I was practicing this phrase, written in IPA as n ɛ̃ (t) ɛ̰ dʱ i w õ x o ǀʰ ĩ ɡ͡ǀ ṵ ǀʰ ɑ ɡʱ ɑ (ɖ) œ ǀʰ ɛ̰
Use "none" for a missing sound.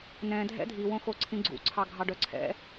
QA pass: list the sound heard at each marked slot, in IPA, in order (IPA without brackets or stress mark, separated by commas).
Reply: dʱ, ɖ